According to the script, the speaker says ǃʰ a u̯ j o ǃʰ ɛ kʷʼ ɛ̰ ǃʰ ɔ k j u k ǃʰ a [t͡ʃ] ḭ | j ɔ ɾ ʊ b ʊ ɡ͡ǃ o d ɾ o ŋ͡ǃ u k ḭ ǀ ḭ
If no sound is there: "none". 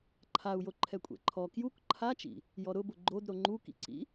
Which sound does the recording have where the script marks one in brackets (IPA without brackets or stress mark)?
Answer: t͡ʃ